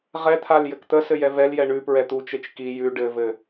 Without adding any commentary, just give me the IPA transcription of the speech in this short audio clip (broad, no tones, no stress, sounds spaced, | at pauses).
ʁ ɛ t̪ʰ a l j ɘ k t̪ ə s ɘ j ɛ v ɛ l j ɛ ɳ ʉ p ɹ ɛ t̪ u t͡ʃ e t͡ʃ k i j ʉ ɖ ɘ v ɘ